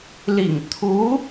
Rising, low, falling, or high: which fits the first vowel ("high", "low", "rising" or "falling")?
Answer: low